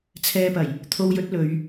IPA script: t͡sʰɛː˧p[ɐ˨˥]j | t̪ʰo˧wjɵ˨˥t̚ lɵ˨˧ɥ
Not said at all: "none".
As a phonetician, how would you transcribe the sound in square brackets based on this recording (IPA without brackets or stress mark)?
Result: ɐ˨˩